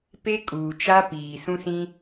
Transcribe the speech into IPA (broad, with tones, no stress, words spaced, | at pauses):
pe˦kʼuː˨t͡ʃa˦ piː˨ sũ˦sĩ˦